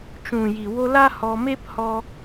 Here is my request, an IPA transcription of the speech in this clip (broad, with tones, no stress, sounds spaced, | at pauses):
t͡ʃ ũ˨ j i˨ w o˧ l a˦ h ɔ˧ m e˦ p h ɔ˧